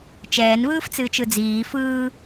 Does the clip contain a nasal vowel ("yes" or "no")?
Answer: no